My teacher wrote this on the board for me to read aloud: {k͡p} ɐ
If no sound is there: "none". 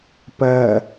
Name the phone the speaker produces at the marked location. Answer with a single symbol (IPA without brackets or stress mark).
p